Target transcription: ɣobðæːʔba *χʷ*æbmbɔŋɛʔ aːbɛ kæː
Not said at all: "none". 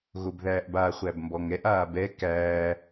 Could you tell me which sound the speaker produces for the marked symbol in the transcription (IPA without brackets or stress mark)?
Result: χʷ